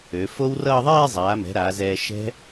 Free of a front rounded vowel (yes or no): no